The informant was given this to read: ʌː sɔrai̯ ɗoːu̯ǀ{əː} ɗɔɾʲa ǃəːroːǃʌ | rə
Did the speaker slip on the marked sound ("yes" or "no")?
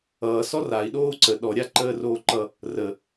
yes